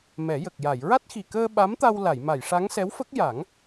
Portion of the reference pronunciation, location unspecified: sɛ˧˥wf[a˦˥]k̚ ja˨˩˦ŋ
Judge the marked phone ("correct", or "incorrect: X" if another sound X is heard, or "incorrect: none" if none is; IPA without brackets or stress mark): incorrect: ə˦˥